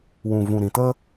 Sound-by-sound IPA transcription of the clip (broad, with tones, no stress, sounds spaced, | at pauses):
w ũ˨ v ũ˨ ɾ ĩ˨ t ə˦